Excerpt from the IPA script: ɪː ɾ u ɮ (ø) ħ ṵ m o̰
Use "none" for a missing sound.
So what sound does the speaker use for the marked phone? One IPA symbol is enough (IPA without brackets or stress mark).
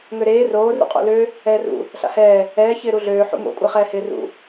øː